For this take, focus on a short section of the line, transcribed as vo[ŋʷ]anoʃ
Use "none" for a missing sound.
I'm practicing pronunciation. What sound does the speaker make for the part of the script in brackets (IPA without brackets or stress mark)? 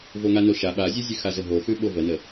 ŋ